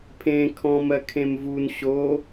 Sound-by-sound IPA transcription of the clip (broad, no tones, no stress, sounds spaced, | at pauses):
pʰ ẽ kʰ ɔ̃ m ɜ kʰ ẽ m v u n ɕ o